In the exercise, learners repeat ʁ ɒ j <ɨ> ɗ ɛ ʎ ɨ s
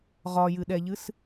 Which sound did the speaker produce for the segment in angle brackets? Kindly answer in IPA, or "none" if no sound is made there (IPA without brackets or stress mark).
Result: ɨ